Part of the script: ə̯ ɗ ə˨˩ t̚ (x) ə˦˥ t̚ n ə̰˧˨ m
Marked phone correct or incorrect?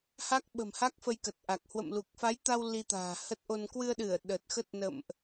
correct